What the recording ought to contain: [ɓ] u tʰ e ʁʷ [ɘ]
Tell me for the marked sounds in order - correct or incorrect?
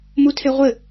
incorrect: m, correct

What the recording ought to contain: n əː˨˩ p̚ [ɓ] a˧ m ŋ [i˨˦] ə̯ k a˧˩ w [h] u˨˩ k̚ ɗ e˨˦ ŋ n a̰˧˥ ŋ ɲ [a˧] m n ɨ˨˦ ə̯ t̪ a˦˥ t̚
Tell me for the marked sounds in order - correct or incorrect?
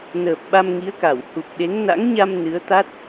correct, correct, correct, correct

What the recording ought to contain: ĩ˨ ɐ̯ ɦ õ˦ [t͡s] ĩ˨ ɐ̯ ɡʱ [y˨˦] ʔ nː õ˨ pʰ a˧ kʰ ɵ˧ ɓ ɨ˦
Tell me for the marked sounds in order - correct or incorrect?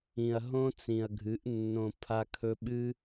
correct, incorrect: ɨ˨˦

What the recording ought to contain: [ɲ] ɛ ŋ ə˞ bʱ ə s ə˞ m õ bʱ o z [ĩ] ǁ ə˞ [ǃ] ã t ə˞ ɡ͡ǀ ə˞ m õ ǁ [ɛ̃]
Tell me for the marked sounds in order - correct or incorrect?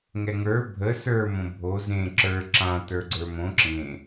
incorrect: ŋ, incorrect: ẽ, incorrect: ǁ, incorrect: ẽ

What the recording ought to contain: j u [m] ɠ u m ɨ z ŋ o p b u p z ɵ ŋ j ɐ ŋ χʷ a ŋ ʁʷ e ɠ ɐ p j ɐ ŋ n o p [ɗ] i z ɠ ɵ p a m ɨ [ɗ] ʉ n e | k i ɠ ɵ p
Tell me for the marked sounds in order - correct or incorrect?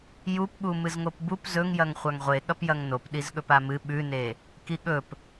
incorrect: p, correct, incorrect: ɓ

